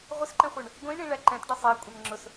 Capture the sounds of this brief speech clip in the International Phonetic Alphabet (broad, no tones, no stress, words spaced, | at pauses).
ʁʷɪsǃɛ̃χʷə˞ɳ | ɡʷĩɳĩ ɭæǃɛ̃t ɖʌsˤɛ kʷʼɛnŋ͡ǁʊs